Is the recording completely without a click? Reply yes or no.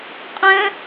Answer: yes